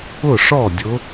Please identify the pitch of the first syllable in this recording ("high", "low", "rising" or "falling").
falling